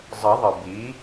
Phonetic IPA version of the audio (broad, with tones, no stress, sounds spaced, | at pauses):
zˤ ə˨˩˦ ðˤ ə˩ b i˩˥